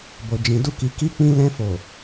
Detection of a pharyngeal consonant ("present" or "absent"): absent